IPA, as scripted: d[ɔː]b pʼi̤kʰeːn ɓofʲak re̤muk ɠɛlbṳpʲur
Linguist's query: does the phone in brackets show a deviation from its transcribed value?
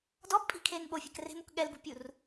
yes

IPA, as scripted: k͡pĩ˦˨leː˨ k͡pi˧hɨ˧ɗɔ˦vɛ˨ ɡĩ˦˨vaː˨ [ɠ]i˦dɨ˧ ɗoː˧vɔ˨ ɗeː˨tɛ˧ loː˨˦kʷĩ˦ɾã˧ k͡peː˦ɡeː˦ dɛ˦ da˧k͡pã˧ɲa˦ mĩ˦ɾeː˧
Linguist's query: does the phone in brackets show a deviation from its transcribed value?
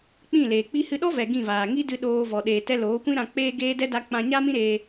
yes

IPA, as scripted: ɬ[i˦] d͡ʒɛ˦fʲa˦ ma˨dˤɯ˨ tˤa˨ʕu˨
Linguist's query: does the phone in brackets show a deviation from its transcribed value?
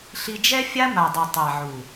no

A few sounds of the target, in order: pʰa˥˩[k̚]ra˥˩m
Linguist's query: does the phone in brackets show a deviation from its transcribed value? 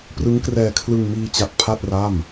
yes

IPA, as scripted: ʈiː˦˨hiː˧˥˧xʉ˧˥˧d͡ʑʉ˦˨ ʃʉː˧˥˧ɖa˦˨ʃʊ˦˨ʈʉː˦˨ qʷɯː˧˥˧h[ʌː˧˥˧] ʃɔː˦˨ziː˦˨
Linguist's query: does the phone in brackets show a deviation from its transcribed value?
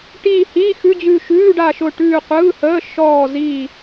yes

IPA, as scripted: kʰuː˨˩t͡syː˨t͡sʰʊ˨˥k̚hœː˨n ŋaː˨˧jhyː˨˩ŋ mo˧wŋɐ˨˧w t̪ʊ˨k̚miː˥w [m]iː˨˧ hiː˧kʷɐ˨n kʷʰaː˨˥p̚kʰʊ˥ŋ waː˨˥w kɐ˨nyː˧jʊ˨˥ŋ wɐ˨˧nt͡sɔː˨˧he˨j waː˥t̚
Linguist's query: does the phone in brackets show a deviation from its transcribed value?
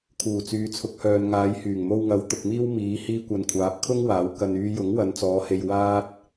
no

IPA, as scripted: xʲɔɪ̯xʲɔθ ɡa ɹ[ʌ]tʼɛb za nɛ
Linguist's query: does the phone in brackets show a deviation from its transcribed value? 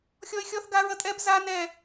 no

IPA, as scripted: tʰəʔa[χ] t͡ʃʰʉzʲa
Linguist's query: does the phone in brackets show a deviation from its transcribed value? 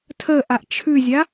yes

